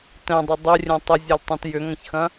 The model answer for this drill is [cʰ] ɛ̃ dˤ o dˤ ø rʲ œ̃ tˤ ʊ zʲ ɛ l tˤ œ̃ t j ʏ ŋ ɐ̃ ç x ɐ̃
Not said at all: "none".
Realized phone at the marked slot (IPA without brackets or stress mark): t